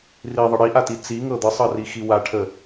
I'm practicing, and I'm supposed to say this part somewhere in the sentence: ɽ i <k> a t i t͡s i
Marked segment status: incorrect: ʔ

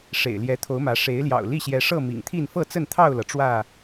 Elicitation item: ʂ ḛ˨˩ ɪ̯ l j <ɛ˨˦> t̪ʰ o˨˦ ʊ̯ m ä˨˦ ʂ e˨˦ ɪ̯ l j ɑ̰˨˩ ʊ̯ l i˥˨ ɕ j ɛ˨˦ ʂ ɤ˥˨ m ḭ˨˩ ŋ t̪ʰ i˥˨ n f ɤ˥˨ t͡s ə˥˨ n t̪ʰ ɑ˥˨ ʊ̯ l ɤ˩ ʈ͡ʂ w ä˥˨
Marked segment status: correct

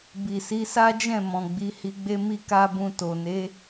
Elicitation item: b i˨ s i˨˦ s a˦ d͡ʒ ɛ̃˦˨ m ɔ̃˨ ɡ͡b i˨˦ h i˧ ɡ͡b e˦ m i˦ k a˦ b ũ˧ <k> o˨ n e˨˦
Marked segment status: incorrect: t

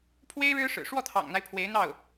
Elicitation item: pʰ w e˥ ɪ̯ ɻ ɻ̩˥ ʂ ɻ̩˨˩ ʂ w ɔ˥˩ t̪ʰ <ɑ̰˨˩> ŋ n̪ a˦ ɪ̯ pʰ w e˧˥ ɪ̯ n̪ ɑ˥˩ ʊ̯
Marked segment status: correct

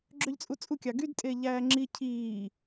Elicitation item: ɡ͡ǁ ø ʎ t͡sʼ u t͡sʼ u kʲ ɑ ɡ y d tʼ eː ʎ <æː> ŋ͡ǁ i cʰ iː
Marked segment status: correct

